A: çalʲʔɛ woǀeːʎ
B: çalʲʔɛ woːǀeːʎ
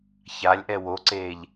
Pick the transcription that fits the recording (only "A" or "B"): A